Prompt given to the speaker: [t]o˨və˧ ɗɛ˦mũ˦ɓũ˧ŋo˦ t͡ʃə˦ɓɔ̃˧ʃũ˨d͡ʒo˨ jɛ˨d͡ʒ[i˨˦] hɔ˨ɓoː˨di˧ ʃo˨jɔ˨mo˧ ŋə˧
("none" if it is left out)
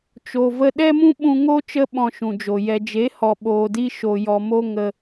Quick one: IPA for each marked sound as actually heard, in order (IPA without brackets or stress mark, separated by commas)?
t͡ʃ, e˨˦